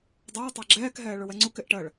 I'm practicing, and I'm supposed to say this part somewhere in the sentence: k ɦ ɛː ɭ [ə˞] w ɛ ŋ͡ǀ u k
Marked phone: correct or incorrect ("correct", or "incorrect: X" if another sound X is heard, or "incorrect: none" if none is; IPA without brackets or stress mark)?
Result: correct